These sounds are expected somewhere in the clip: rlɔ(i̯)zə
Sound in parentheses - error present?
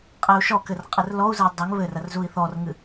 yes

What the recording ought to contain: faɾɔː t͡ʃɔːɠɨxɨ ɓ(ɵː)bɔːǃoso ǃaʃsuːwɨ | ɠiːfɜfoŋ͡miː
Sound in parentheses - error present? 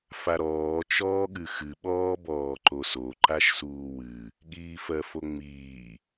yes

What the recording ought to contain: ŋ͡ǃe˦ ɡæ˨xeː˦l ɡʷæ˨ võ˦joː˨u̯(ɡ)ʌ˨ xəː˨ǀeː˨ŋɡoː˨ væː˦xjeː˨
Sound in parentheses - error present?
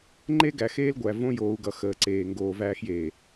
no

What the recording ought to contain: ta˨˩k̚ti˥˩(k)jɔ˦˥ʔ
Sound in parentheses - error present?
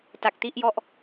yes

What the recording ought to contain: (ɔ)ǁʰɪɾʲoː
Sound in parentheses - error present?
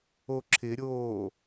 yes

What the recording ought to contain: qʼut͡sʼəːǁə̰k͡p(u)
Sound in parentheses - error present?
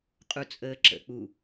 no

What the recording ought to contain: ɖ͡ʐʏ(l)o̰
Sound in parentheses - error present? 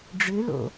no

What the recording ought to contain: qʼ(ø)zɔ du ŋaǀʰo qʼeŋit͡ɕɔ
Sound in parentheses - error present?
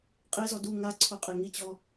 yes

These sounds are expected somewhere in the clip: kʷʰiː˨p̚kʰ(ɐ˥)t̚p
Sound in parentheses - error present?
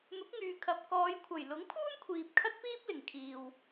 no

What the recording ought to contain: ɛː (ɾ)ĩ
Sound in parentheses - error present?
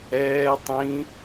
yes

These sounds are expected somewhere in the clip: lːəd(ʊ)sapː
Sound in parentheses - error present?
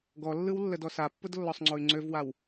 yes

